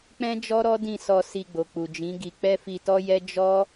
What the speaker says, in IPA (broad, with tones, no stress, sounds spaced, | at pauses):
k͡p ɛ̃˦ d͡ʒ ɔ˦ ɾ ɔ˦ d ĩ˦˨ s ɔ˧ s i˧ ɡ͡b o˨ k͡p u˨ d͡ʒ ĩ˨˦ ɡ i˧ k͡p ɛ˦ f i˧ t ɔ˦ j ɛ˦ d͡ʒ ɔ˦